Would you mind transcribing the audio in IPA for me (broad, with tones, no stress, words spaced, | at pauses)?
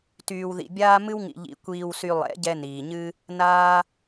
tyː˧wðḭ˧bʲaː˦ mɨ˦wŋḭ˧ʎḭ˧ kʷiː˧wsy˧ lˠɛ̰˨˦ɟɛ˧ niː˨ɲɨ˦ | naː˦